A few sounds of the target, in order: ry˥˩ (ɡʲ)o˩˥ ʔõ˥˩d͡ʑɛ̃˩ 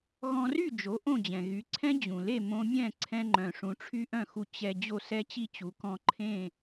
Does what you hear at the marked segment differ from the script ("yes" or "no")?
yes